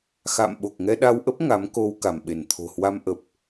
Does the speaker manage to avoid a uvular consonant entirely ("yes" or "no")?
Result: yes